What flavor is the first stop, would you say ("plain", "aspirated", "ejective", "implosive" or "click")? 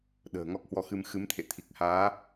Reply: implosive